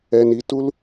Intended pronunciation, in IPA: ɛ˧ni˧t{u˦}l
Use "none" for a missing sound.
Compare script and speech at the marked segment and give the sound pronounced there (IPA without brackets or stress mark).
u˦